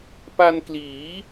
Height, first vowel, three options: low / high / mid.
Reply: low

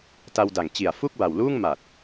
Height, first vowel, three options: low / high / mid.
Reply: low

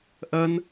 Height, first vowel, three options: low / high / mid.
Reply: low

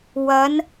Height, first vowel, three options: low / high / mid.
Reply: low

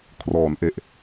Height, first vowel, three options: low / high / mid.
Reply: mid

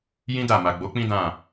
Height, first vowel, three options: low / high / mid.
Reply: high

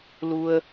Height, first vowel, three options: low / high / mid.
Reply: high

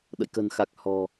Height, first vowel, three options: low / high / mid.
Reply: mid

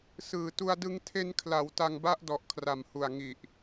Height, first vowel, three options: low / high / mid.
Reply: high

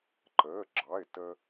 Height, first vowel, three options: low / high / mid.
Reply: mid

